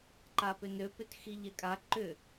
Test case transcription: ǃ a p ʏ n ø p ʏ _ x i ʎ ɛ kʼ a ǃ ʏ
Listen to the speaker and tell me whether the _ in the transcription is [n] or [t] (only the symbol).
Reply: t